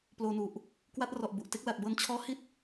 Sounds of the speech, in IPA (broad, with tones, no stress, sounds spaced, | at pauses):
p l oː˧ n u˨˩ ʔ | k w a˦˥ t̚ r ɔ˨˩ ʔ b u˨˩ ʔ t e˦˥ k̚ l a˨˩ t̚ b ɤː˧ n t͡ɕʰ ɔː˦˥ h i˥˩ t̚